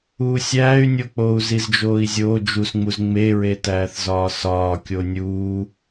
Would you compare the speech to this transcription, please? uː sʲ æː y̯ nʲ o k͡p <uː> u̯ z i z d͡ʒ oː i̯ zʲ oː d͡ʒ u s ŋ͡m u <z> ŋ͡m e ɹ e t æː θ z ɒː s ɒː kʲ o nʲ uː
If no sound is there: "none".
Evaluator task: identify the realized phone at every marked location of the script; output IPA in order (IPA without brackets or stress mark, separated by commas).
oː, z